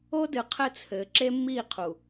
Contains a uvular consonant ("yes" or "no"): yes